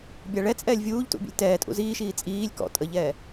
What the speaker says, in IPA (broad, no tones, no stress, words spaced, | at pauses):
bʲaɭɛ t͡sʼɛːlʲvʲuːʎtṵbʲə̰lʲ tɛː tʼṵziːʃiː t͡sʼiːlʲ kɔ̰ tʼəʎɛː